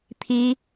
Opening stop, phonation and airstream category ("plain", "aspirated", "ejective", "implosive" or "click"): aspirated